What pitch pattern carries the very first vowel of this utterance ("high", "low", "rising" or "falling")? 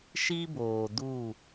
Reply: high